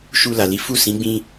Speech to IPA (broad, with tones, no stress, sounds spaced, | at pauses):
ʃ u˧ l a˨ l i˨˦ f u˦˨ s ĩ˨˦ ɡ͡b ĩ˧